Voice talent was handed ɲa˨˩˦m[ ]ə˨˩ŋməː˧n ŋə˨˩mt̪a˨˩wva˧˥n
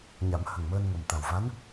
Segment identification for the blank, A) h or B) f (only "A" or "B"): A